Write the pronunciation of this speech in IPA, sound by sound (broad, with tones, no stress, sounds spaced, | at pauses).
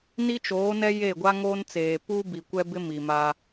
n i˦ t͡ʃ oː˨˦ n ɛ˦ j e˦˨ ɡʷ a˦ ŋ oː˦ n t͡s eː˨ p u˦ b i˨ kʷ ɛ˦ b ɪ˦ m i˨ m a˦